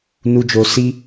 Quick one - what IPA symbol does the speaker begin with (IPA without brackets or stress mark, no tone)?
n